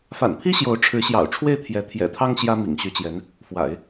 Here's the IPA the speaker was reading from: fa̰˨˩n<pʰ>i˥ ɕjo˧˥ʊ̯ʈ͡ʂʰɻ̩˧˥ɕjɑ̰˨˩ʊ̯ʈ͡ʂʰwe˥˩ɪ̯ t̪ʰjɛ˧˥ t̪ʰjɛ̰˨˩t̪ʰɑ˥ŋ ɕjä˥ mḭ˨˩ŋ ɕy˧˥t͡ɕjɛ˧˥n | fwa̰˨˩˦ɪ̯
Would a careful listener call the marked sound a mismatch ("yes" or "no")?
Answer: no